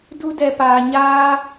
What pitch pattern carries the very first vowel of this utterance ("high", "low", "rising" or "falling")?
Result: high